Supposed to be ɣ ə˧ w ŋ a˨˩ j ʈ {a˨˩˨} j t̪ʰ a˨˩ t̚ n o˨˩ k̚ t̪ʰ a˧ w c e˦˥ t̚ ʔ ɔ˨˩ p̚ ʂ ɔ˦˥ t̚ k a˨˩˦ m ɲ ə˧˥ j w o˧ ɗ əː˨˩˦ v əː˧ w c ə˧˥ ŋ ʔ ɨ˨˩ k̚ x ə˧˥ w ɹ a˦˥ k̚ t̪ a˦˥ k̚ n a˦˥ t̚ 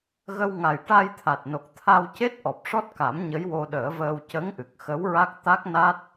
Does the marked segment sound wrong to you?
yes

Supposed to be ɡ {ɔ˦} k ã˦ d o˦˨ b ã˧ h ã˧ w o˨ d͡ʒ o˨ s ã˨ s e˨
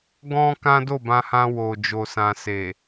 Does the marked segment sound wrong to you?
yes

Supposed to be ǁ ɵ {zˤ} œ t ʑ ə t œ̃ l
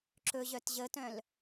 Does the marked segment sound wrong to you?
yes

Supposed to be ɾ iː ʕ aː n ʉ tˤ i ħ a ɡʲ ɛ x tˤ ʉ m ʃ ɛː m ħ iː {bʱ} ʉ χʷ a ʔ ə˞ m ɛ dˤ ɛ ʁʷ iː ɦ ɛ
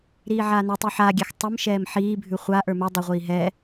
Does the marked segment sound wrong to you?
no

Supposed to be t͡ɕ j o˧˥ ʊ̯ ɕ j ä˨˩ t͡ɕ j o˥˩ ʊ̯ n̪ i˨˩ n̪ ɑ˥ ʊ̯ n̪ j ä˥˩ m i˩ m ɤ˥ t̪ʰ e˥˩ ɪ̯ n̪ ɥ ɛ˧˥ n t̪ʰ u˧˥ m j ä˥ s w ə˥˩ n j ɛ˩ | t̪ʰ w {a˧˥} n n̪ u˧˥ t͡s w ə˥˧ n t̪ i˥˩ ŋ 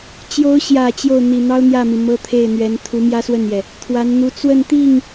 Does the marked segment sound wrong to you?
no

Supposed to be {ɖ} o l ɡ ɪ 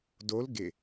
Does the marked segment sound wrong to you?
yes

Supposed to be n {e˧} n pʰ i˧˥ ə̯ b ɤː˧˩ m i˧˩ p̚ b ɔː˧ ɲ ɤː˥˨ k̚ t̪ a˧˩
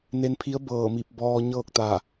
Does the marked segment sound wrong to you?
no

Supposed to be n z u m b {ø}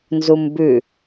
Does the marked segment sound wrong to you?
yes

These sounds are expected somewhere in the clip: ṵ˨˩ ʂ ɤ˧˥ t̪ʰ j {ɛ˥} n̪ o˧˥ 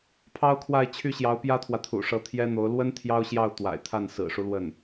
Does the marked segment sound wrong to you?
no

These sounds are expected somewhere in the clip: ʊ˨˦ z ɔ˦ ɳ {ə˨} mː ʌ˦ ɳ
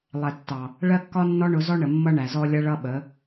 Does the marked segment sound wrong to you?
no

